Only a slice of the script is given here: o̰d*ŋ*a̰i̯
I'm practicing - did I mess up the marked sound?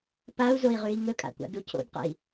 yes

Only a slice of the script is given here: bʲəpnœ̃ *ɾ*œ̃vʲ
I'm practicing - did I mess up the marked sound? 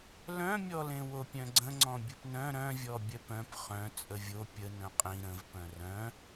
no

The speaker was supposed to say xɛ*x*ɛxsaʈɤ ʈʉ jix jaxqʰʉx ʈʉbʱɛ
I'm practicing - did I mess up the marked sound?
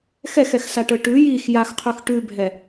no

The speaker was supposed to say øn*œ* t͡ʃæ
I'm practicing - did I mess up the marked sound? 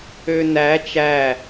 yes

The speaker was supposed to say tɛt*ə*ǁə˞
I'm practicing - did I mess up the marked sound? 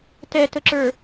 no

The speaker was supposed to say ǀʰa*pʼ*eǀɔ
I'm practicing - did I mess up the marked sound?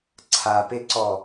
yes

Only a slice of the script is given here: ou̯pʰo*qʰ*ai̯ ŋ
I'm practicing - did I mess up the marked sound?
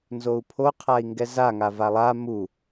no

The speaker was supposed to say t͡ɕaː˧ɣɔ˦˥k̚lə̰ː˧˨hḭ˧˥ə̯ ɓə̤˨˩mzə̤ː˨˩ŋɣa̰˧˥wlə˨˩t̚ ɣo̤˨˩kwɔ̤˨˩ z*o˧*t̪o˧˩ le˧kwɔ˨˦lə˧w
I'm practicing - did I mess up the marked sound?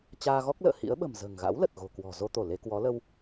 no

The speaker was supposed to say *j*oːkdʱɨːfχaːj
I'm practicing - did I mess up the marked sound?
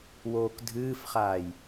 yes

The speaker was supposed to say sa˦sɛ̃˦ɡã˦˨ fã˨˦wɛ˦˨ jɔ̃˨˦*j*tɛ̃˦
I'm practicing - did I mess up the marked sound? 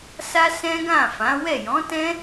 yes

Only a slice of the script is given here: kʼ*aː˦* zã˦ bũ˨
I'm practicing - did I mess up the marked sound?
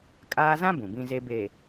no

